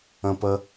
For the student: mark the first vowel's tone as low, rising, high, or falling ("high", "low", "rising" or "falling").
high